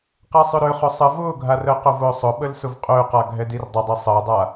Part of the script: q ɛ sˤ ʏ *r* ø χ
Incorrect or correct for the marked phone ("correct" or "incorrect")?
incorrect